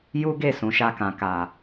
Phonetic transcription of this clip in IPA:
ju˦ɡe˦˨sũ˨ʃa˧ kã˨ka˨

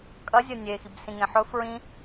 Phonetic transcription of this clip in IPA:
kʼɐ zʲɐnʲe xibsĩŋẽħɵ fɹĩ

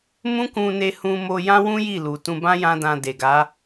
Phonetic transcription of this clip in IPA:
mũ˦kũ˧ne˧ hũ˧mo˧ jã˦wũ˦ ji˦˨lu˨tũ˧bã˦ jã˦ dã˧de˨ɡa˨˦

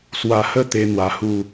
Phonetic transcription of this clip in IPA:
swa˥˧ hə˥˧t̪e˧ n̪wa˧hu˥˧

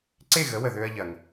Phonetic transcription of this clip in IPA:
ǀe˥˩ɣə˩˥wə˩ ðø˧ɐ̯ʎɐ˩ŋ

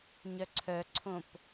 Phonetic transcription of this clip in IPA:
ɲœǀʰœǀʰõp

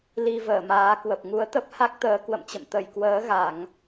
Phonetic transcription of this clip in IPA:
li˧ vəː˧˩maː˨˦kwə˨˩p̚ ŋu˨˦ə̯t̪ə˦˥p̚ha˦˥k̚t̪əː˨˦ kwə̰˧˨mt͡ɕə̰˧˨m t̪ə˧˩jkwəː˨˦ɣa˧˩˨ŋ

